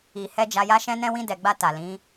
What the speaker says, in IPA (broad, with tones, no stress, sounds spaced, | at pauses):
i˨ h ɛ˧ d͡ʒ a˧ j a˦ ʃ ɛ̃˦ n ɛ̃˦ w ĩ˧ d ɛ˨ ɡ͡b a˧ t a˨ l ĩ˨˦